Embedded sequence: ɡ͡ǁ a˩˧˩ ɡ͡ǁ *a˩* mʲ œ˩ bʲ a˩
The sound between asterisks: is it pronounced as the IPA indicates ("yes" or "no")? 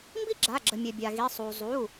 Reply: no